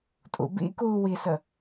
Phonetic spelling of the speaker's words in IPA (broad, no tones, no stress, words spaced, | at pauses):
tʼṵbḭ kuːwisə